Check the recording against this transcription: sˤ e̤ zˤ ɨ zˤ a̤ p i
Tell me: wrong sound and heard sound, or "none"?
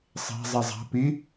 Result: ɨ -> i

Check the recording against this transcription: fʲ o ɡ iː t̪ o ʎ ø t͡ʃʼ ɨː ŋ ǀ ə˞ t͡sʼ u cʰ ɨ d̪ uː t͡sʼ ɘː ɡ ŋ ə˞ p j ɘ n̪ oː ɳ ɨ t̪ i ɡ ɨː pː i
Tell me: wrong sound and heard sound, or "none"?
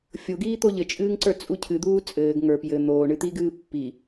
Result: ø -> ɘ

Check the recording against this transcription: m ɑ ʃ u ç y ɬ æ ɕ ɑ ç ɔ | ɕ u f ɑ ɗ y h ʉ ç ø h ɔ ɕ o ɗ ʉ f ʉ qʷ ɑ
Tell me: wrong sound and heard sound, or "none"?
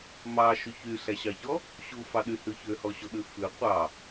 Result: none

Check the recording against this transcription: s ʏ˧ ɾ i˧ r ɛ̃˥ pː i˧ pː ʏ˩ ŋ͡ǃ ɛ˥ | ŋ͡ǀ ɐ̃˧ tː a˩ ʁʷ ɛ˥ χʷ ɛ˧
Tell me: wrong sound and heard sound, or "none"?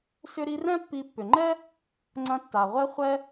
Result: none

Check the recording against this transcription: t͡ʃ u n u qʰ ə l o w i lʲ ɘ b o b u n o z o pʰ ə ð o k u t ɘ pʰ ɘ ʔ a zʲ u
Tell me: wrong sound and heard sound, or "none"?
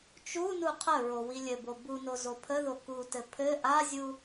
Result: l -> ɹ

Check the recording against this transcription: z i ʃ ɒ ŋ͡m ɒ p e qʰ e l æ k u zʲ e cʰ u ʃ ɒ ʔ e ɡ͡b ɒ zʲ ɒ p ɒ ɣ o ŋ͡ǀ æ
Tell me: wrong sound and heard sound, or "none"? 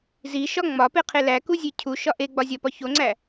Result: ɣ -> ç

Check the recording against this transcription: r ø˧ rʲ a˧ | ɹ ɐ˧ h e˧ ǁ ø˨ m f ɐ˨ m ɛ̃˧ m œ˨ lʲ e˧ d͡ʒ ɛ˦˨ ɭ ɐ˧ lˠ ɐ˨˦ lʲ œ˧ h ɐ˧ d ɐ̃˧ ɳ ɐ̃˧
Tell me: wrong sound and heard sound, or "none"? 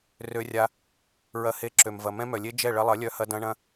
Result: f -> v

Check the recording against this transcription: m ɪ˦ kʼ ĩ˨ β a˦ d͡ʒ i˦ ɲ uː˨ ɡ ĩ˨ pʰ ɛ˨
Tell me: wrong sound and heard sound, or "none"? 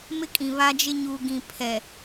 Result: i˦ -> ɪ˦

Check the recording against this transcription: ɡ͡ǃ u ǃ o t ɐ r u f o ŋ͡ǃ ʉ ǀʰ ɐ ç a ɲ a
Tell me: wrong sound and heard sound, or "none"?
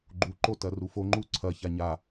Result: ʉ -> u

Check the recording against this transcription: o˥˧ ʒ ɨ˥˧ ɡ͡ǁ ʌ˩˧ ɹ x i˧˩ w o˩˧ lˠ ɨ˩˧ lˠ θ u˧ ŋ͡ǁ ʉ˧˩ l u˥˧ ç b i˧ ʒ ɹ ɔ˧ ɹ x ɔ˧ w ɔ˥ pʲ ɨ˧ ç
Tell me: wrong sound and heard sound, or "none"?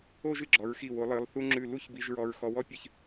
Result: ʌ˩˧ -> ɔ˩˧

